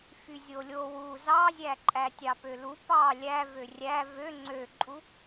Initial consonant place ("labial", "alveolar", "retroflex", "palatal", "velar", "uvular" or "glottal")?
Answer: labial